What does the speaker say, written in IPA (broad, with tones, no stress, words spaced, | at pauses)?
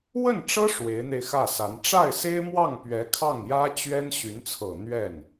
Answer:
wə˥˩nʈ͡ʂɤ˥ ʂwe˧˥ɪ̯n̪e˧ɪ̯xä˥˩sa˧˥n ʈ͡ʂa˥˩ɪ̯se˥ɪ̯mwɑ˥˩ŋ pɥɛ˧˥kʰɑ˥˩ŋjä˥t͡ɕɥɛ˥n ɕy˧˥nt͡sʰɤ˨˩ n̪ɥɛ˥˩n